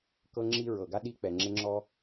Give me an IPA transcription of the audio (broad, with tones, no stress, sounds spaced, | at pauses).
k ɤ˥ ŋ͡ǁ i˥ ɹ ɤ˩ ɡ a˥ ɗ i˥ k͡p ɛ˩ ŋ͡ǁ e˥ ŋ͡ǁ ɔ˥